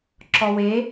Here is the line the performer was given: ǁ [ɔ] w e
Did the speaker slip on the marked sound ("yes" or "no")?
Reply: no